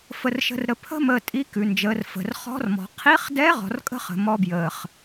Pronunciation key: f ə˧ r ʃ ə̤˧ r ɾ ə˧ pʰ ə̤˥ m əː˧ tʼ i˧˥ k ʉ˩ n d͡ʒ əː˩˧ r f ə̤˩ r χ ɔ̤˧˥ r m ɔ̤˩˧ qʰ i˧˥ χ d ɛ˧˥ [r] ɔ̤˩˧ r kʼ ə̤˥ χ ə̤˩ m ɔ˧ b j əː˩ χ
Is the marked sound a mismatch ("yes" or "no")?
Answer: yes